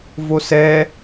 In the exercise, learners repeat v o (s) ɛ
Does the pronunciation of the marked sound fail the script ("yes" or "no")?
no